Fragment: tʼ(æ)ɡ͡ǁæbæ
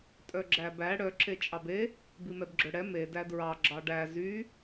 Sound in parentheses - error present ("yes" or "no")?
yes